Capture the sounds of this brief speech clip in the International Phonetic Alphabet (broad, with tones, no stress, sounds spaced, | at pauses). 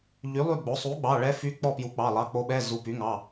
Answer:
ʎ y˩˥ lˠ y˦˨ ɡ͡b o˩˥ sˤ u˩˥ ɡ͡b ɑ˩˧˩ ɭ ɛ˧˥ f y˧˥ k͡p ɔ˦˨ p j u˩˥ k͡p ɑ˩˧˩ lˠ ɑ˩˧˩ k͡p o˧˥ ɓ ɛ˧˥˧ z u˩˧˩ p y˩˥ ŋ ɑ˩˧˩